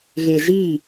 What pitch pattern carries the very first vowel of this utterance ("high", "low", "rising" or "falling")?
low